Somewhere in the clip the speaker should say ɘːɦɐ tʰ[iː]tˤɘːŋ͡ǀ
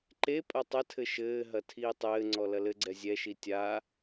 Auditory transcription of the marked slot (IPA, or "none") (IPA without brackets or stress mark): iː